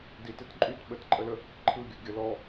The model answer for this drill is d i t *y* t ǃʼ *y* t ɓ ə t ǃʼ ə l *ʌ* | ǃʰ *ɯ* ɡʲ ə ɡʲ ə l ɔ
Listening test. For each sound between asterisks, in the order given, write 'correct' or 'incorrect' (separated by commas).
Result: incorrect, correct, incorrect, correct